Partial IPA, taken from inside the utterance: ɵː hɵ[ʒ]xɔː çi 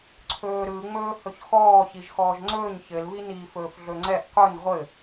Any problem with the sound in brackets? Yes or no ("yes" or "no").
yes